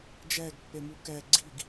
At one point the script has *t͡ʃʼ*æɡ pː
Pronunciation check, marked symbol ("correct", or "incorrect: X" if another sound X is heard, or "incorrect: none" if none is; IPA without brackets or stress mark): incorrect: d͡ʒ